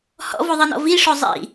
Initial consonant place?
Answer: glottal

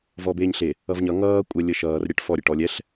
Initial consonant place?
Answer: labial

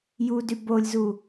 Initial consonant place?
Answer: palatal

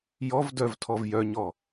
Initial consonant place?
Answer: palatal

